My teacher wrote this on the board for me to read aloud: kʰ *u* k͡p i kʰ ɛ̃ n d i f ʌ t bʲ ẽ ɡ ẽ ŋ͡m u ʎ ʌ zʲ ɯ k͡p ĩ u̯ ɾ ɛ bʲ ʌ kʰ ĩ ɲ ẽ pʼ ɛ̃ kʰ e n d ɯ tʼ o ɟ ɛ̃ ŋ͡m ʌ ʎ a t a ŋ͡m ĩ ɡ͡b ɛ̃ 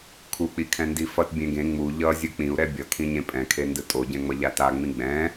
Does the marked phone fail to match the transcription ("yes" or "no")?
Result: no